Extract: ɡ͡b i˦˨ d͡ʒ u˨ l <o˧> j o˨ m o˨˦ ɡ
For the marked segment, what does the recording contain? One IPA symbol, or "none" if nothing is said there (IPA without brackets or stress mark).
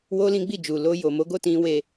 o˧